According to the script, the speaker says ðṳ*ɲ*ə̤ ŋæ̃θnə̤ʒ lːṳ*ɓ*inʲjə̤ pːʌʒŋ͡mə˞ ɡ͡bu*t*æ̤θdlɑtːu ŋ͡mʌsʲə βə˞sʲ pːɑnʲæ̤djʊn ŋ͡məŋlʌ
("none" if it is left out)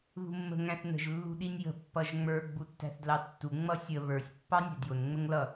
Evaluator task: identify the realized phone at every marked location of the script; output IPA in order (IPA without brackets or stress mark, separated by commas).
mː, ɗ, tː